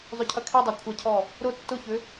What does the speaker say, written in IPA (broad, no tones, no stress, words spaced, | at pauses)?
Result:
zˤʏcʰɐkʰidˤo kʷʰɐcʰɔ | ɾʊ tːʊçʏ